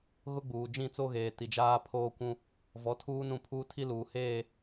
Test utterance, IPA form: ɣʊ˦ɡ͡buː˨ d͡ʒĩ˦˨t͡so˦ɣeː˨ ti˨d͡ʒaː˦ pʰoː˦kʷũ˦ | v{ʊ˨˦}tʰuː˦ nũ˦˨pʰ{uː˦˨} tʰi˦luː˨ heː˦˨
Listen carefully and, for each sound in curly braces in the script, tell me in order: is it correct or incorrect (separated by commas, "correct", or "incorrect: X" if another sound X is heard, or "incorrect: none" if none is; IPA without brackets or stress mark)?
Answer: incorrect: ɔ˨˦, incorrect: uː˦